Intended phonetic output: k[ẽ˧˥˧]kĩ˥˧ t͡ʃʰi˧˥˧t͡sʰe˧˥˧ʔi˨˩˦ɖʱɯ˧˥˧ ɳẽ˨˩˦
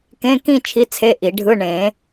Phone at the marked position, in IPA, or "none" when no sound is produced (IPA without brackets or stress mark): ẽ˧˥˧